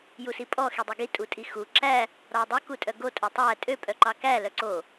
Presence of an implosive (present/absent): absent